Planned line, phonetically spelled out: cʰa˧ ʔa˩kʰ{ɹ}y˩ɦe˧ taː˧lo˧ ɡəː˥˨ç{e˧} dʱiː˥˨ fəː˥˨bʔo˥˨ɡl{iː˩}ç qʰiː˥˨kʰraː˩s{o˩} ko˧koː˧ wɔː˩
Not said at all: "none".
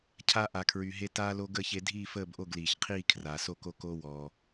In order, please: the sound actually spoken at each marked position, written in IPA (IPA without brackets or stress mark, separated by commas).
ɹ, e˧, iː˩, o˥˨